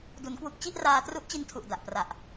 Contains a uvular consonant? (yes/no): no